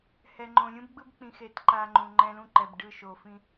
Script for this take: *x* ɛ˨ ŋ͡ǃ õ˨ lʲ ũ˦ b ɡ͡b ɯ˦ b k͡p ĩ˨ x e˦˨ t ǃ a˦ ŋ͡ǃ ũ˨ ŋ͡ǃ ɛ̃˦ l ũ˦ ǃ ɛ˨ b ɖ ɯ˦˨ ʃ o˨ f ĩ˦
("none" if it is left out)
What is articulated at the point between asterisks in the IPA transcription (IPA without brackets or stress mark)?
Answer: h